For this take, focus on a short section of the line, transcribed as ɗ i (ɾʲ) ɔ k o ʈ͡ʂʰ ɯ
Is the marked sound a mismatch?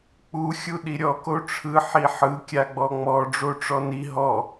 no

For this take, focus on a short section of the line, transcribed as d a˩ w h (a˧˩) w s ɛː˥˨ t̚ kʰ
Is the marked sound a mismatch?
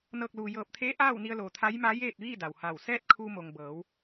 no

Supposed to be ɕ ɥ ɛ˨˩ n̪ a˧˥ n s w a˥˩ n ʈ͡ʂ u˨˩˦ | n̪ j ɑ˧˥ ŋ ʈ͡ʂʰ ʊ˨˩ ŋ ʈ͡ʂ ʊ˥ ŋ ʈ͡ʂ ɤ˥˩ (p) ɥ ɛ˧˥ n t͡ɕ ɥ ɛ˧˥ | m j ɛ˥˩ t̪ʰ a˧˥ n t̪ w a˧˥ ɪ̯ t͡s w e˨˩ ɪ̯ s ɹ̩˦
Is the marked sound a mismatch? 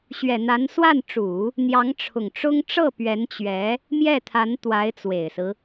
no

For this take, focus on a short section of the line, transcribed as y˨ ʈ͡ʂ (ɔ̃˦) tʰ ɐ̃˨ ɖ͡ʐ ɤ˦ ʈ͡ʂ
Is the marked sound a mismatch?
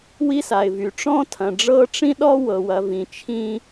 no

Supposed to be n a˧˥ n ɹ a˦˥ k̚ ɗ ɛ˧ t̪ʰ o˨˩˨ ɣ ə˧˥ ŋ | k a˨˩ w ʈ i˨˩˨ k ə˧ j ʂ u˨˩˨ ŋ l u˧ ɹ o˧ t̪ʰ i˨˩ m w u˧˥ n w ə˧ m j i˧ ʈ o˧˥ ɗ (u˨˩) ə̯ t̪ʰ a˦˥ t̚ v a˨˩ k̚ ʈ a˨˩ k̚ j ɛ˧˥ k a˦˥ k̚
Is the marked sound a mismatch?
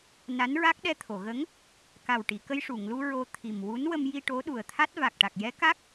no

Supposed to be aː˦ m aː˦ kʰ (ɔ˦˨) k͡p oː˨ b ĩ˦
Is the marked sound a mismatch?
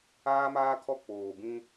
no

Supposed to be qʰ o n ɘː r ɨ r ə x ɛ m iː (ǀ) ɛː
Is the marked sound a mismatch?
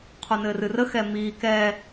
yes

